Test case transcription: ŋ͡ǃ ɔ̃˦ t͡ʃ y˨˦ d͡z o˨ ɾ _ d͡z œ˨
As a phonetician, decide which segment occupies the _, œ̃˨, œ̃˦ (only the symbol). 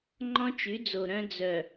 œ̃˦